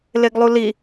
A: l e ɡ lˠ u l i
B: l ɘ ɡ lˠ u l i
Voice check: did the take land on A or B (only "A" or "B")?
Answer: A